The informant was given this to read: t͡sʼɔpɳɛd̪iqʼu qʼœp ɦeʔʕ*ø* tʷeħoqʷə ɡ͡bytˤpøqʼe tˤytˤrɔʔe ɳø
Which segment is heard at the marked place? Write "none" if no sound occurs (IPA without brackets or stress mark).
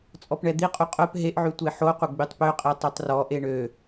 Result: y